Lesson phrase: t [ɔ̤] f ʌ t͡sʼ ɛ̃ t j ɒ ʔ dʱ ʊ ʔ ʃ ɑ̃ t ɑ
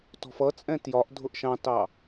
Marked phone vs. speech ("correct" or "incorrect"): correct